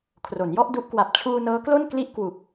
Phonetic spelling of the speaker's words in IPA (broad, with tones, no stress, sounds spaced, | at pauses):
kʰ r o˩˦ n j ɔ˥˩ ʔ d u˦˥ ʔ k w a˨˩ p̚ t͡ɕʰ uː˧ n ɤː˦˥ k l o˥˩ n k l i˥˩ ʔ k w u˨˩ k̚